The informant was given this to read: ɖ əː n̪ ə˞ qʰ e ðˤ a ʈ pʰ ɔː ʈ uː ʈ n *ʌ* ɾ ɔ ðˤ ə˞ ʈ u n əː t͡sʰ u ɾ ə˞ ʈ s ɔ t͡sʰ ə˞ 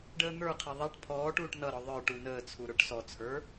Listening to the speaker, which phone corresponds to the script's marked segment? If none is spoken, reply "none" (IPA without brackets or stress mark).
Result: ʌ